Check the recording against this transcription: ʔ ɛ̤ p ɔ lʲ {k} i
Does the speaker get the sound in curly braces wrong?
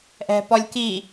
no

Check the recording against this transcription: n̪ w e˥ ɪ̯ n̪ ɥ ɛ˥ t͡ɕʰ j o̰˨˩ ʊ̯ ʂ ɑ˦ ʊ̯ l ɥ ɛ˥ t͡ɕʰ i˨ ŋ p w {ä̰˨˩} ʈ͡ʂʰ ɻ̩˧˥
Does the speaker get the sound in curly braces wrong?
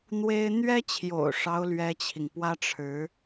yes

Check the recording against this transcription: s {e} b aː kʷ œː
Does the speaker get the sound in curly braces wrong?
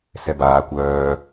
yes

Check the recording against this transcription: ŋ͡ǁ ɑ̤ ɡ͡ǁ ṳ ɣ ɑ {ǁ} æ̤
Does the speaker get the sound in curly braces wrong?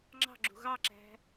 no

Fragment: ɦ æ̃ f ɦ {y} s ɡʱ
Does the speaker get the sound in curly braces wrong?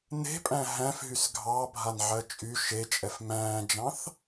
no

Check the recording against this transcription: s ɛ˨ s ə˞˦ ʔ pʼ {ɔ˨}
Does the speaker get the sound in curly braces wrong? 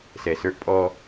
yes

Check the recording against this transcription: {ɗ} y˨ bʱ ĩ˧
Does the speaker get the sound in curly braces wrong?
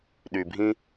no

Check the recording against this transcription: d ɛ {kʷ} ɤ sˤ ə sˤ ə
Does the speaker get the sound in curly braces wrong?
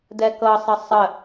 yes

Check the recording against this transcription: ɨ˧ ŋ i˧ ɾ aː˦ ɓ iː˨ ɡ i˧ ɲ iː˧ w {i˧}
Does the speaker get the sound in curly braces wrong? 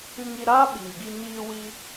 no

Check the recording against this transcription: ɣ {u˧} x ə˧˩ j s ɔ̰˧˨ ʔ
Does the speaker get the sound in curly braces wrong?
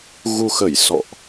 no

